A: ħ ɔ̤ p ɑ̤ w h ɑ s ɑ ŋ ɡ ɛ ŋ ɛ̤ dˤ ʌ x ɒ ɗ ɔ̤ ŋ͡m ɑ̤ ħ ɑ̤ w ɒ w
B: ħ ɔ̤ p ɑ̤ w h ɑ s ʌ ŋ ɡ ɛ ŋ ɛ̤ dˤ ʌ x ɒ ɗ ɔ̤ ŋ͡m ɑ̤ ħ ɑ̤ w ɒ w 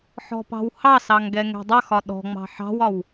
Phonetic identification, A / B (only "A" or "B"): A